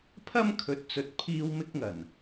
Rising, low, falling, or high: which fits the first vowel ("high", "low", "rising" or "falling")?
high